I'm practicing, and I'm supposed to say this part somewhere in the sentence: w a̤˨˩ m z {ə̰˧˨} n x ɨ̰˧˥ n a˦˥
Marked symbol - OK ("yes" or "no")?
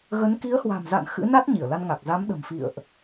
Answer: no